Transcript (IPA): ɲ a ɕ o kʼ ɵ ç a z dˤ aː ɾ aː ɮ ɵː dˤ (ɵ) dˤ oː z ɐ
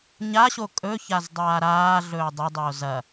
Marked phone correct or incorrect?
correct